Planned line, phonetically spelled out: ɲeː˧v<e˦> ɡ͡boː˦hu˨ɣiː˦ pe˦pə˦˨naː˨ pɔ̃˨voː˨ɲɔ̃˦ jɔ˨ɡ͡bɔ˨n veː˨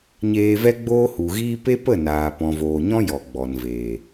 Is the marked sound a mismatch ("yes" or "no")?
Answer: yes